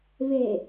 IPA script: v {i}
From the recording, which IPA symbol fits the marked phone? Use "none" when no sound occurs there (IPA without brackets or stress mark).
e